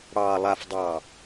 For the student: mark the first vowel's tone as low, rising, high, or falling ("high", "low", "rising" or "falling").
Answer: low